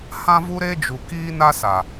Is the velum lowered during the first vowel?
yes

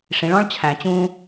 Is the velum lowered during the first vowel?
yes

